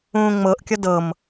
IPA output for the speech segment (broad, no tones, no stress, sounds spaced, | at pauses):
ũː ŋ͡m ɤ ʔ kʲ ʌ d ɤ m